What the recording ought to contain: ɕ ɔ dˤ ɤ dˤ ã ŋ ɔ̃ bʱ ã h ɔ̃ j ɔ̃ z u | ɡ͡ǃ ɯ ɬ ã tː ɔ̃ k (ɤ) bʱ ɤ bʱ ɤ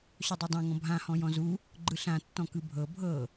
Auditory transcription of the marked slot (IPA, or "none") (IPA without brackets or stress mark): ɯ